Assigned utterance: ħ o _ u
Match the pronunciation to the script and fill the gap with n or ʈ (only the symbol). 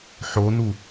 n